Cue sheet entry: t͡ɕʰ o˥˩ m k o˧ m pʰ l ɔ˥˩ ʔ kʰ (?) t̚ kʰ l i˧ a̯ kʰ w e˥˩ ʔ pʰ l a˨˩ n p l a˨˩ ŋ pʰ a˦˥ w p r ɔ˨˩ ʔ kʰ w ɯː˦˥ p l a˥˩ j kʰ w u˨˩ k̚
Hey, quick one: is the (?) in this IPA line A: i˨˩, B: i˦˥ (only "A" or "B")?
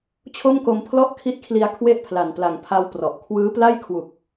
B